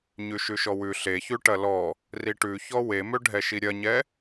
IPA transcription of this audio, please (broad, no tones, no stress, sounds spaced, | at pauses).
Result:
ɲ ʉ ʃ ʉ ʃ ɔ w ʉ ɬ e ç ʉ ʈ ɐ l ɔ | r i ʈ ʉ ç ɔ w e m ø ɖʱ ɛ ʃ i ɾʲ ɐ ɲ ɛ